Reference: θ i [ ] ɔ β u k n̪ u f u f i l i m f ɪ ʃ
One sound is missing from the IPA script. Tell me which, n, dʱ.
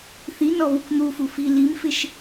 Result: n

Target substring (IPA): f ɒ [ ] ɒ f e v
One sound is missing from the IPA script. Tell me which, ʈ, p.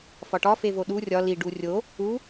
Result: ʈ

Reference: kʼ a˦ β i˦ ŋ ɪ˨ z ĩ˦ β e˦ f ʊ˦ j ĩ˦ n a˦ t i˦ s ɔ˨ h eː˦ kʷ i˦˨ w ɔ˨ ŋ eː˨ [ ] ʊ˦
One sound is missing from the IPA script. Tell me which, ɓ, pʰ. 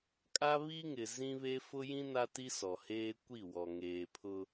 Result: pʰ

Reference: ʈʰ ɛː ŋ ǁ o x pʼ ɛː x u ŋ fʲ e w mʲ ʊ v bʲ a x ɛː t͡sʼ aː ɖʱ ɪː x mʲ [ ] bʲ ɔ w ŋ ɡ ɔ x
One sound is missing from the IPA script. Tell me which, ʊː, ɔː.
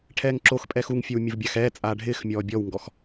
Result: ɔː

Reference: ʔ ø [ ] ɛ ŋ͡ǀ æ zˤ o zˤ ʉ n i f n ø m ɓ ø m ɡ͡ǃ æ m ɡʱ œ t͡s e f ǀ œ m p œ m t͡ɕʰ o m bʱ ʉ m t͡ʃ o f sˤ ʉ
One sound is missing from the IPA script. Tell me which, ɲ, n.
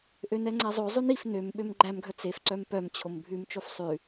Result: n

